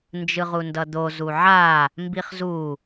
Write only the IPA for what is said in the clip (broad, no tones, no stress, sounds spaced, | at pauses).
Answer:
n d͡ʒ ɯ ʁ u n d ʌ d̪ o z u ʕ a | m b i χ z u